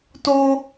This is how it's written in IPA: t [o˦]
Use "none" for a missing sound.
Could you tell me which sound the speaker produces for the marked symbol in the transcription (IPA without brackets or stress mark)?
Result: o˦